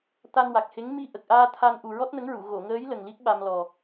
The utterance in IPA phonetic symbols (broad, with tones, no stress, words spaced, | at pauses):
t̪a˧nwa˨˩k̚he˧˥ŋ mi˧ʔə˨˩k̚ʔaː˧ t̪ʰa˧nʔu˨˩ ɹɔ˦˥t̚nə˧˥ŋɹu˨˩˨ ɣo˨˩˨ŋəː˧˥j lə˨˩ŋli˦˥k̚ ɓa˧mlɔ˨˩